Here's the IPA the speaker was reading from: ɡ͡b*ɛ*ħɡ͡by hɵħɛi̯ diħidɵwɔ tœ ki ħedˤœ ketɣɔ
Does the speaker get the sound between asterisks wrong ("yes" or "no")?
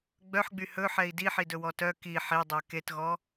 yes